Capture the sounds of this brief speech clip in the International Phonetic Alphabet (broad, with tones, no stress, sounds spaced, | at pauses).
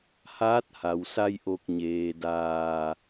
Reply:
h aː˧˥ t̚ h a˩ w s a˧ j ʔ o˧˩ k̚ ɲ eː˩ d aː˧˩